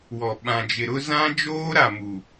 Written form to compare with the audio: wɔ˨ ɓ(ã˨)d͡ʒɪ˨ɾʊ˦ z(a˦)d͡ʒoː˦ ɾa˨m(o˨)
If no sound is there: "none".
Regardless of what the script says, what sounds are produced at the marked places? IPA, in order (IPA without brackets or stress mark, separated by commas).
ã˨, ã˦, u˨